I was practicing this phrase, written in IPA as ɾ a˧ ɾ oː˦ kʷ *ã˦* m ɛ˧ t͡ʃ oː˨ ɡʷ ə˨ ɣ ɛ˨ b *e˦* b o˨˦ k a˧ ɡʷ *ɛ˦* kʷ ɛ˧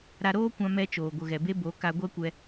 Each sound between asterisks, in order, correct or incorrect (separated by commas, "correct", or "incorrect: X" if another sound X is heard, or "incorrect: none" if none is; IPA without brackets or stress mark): incorrect: ã˧, incorrect: e˧, correct